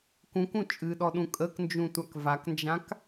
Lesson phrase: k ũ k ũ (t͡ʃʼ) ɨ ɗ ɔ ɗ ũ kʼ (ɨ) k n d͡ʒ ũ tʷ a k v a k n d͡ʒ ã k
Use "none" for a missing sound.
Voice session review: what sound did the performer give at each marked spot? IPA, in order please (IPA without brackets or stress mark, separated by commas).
t͡ʃʼ, ə